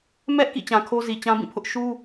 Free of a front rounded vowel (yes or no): yes